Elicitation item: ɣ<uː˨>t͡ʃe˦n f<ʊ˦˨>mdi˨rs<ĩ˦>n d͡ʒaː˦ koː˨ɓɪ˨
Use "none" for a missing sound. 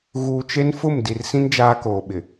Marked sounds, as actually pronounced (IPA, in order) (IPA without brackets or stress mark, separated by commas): uː˨, ʊ˦˨, ĩ˦